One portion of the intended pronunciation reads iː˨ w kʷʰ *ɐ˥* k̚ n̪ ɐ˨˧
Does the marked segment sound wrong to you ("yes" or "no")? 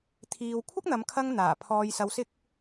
no